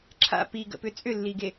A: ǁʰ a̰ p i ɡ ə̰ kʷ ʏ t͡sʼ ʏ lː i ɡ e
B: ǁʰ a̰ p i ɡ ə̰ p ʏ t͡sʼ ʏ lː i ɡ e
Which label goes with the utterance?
B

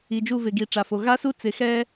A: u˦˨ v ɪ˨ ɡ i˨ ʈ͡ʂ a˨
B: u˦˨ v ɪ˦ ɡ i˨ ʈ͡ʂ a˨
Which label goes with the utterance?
A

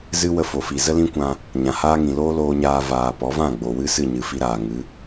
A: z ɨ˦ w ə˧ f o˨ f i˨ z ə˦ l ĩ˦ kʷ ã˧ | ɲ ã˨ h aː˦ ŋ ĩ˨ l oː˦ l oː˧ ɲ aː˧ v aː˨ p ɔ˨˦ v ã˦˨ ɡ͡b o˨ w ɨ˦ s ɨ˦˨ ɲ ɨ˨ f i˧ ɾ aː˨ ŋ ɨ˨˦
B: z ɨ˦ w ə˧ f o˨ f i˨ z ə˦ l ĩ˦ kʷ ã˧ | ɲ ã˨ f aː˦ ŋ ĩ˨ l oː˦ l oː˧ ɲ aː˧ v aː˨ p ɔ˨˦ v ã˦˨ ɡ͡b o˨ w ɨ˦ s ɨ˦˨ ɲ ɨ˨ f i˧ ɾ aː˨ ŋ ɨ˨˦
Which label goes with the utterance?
A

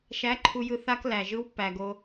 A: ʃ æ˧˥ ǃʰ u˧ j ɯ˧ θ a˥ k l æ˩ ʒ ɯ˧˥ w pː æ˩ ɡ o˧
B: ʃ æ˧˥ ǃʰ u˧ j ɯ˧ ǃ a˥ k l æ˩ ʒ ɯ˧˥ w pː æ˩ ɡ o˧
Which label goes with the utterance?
A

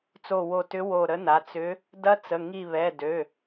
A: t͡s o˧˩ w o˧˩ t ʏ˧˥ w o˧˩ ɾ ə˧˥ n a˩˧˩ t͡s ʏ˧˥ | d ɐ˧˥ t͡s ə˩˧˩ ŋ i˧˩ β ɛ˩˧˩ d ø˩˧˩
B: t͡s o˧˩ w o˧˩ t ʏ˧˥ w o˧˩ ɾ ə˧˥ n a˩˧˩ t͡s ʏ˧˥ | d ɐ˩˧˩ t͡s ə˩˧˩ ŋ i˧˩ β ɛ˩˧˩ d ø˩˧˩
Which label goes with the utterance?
A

